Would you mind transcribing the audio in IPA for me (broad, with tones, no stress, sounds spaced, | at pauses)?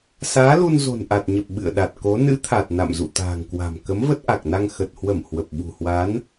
s aː˨˦ l u˧ n z o̤˨˩ n ʔ a˨˩ t̚ ɲ ə˨˩ p̚ ɓ ɨ̰˧˨ ə̯ ɗ a˨˩ t̚ k o˨˦ n ɨ̰˧˥ t̪ʰ a˨˩ t̚ n a̰˧˨ m z ṵ˧˨ t̪ a̤ː˨˩ ŋ k w a̤˨˩ m k ə˨˦ m v ə˦˥ t̚ ʔ a˨˩ k̚ n a˧ ŋ x ə˨˩ t̚ h w ə˧˩ m h w ə˨˩ p̚ ɓ ṳ˨˩ h w a˨˦ n